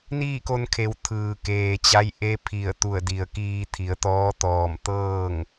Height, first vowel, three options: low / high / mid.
high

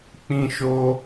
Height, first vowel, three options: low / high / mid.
high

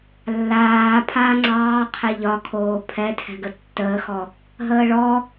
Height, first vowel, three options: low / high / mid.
low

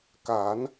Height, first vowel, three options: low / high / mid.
low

